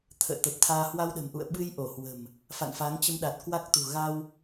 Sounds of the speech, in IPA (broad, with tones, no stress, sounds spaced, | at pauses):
t̪ʰ ə̰ː˧˨ t̪ ə˨˩ p̚ t̪ʰ aː˧ h w a˧ w ɗ ə̤˨˩ m ʔ ṵ˧˨ ə̯ ɓ ɨ˧ j ʔ o˧˩ h w ə̤˨˩ m | f a̰˧˨ n f a˨˦ ŋ t͡ɕ ə˧ m ɗ a˨˩ t̚ k w a˦˥ k̚ t̪ ṳ˨˩ ɣ a˧ w